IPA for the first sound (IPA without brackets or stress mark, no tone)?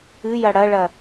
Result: ɨ